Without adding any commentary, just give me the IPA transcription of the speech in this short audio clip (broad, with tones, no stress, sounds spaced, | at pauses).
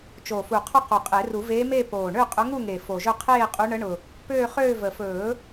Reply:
t͡ʃ o˨˩ f u˨˩ qʰ ɵ˥˧ q o˨˩ qʼ e˨˩˦ r u˨˩˦ v eː˧˥ m e˥˧ p oː˨˩ ɳ ø˥˧ qʼ ʊ˧˥ ŋ u˥˧ ŋ e˨˩ f o˨˩ ʒ ɵ˥˧ qʰ eː˥˧ qʼ u˧˥ ɳ ə˧˥ ɳ ʊ˨˩ | p øː˥˧ χ øː˥˧ v ə˨˩ f ɵː˨˩˦